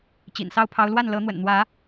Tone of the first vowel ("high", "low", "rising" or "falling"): low